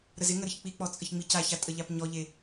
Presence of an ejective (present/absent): present